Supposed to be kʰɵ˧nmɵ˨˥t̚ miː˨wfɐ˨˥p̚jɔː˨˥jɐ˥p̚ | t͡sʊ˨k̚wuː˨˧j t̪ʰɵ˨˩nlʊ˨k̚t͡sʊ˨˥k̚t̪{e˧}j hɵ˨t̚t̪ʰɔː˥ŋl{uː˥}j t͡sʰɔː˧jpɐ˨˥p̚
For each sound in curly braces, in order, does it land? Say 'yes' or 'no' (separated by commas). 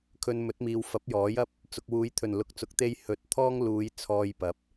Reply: yes, no